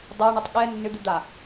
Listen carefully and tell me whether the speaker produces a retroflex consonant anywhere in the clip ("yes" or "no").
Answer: yes